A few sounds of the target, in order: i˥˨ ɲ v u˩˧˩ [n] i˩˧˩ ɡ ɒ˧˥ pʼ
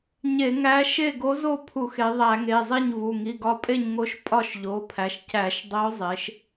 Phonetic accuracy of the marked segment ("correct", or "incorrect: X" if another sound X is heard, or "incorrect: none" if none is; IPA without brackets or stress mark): incorrect: ŋ